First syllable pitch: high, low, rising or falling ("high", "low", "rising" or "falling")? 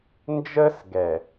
high